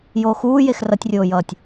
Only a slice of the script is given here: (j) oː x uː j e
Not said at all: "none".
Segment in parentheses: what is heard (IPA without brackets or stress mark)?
j